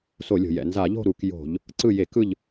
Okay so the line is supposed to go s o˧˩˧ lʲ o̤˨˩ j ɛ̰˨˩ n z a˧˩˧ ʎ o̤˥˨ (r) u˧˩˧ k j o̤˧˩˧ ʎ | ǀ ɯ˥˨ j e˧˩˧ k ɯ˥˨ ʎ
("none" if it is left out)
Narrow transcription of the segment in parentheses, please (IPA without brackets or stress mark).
ɾ